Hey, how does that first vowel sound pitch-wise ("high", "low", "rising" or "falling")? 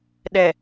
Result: low